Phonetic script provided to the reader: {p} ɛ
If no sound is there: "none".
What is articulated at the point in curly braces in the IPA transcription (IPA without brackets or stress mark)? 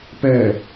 p